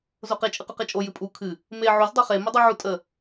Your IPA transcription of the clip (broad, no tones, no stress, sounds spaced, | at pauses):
z o q e t͡ʃʼ ɨ q u q e t͡ʃʼ o j ɨ pʼ u kʰ ɨ | m e ʕ o z dˤ o χ e m ə dˤ u ʕ u tʼ ə